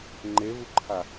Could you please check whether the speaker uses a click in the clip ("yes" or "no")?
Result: yes